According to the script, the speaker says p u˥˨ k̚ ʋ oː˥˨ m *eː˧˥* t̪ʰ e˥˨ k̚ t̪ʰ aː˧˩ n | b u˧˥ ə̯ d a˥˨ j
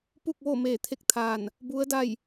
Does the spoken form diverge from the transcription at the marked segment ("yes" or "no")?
yes